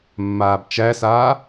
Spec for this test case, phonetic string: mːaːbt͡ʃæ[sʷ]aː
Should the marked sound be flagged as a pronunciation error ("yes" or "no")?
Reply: yes